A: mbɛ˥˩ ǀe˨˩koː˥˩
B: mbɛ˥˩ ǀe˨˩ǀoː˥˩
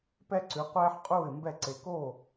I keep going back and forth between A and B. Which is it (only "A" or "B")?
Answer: A